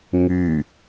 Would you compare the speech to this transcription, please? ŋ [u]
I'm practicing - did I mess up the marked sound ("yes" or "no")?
yes